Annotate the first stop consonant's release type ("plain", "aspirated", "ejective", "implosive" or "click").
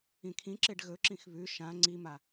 aspirated